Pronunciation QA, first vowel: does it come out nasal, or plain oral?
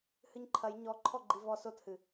oral